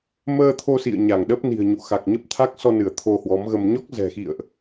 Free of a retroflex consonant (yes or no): yes